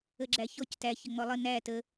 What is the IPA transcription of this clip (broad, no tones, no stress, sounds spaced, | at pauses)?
ə ɡ͡ǁ æ ç ɔ c t æ ç ə ŋ͡m ɔ lˠ ə n æ t ə